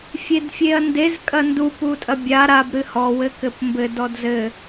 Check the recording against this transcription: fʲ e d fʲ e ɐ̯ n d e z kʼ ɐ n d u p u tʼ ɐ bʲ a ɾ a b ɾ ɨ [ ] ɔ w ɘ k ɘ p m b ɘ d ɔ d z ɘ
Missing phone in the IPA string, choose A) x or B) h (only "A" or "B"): B